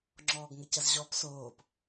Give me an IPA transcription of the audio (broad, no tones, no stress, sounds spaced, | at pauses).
ŋ͡ǁ ɔː ɡ ŋ ə c ɐ z ʑ ɔ p s oː p